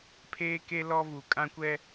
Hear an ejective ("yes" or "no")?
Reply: yes